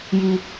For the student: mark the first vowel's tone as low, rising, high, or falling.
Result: low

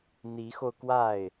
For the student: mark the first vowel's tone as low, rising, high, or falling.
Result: rising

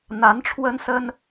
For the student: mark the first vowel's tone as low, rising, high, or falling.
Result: rising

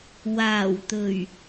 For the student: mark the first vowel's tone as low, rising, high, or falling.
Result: low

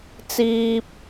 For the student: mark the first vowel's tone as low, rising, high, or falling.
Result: high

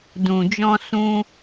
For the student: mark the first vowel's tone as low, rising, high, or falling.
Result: low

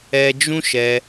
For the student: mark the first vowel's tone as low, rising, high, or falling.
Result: high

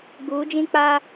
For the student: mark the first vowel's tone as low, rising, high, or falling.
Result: rising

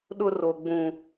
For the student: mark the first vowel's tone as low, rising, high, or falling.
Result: high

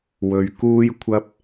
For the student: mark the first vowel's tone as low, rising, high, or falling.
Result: low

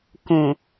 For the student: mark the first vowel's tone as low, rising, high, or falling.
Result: low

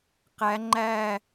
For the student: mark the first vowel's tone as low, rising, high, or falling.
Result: rising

